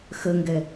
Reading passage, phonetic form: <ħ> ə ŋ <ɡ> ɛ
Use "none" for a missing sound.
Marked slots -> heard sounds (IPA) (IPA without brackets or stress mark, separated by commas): x, ɡ